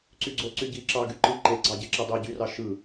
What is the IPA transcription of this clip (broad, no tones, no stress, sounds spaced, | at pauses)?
ǀ y ɡ͡ǀ o ǀ y ɟ i ǁ ɑ ɡ y ǃ ɯ ǃ e ɡ͡ǀ ɑ ɟ e ǁ e dˤ i ɟ y r ɑ ʃ ɯ